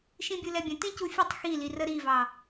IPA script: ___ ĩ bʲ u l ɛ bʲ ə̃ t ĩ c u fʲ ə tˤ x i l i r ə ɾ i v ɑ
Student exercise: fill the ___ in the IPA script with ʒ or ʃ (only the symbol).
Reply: ʃ